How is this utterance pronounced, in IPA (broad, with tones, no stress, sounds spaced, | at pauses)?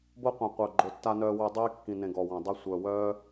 b o˧ qʷ œ̃˨˩ qʷ œ˨˩ ɡ͡ǃ o˨˩ tː a˧ n œː˧ w ø˧ dˤ iː˧ kː ĩ˨˩ n ẽ˨˩ ɡ ɔ˨˩ w ɔ̃˨˩ dˤ ɛ˧ sʷ œ˨˩ w œː˧